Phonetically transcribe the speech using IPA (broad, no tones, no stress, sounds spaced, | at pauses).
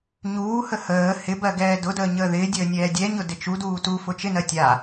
ɲ uː h ə h əː h ɪ b ɜ ɡ ɛː d ʊ d əː ɲ əː ð ɪː dʲ əː nʲ ɛː dʲ ɛ ɲ ʊ d ɪ t͡ʃ u d uː t u f ʊ t͡ʃ ɪ n ɜ tʲ a